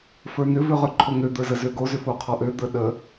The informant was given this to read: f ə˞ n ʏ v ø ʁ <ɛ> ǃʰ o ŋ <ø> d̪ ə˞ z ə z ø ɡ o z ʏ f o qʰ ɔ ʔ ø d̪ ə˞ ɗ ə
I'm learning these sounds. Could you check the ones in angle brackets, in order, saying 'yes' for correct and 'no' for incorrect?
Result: no, yes

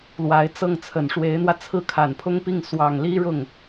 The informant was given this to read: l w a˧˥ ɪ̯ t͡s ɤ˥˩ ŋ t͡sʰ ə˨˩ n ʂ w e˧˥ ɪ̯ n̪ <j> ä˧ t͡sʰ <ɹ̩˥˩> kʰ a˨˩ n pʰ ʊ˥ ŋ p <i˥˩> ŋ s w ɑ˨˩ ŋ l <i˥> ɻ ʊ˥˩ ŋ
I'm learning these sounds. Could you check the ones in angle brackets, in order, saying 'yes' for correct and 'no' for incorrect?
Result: no, yes, yes, yes

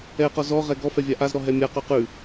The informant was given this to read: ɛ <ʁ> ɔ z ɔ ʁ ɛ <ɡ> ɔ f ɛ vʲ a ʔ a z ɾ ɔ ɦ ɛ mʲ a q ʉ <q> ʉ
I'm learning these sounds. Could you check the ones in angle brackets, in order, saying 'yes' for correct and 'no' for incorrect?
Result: no, yes, yes

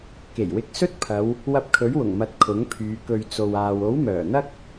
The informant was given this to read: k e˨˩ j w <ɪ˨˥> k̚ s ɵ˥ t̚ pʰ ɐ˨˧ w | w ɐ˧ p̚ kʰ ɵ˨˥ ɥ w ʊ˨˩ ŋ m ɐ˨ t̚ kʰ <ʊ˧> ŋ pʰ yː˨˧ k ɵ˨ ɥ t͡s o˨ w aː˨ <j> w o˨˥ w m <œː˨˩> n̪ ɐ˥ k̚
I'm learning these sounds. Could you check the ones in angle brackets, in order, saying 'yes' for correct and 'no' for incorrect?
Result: yes, no, no, yes

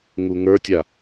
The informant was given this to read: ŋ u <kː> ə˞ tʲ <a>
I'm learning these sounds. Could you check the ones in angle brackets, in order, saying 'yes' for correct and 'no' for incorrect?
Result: no, yes

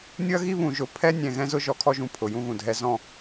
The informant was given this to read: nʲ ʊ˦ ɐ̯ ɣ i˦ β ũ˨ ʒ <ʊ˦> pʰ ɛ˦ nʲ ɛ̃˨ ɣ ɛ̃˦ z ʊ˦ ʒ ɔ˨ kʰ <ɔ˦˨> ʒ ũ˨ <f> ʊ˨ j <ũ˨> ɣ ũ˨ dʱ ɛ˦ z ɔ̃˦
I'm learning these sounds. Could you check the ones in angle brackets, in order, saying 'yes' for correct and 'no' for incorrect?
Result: no, yes, no, no

